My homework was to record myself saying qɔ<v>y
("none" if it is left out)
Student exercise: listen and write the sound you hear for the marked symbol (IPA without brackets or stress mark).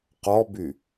b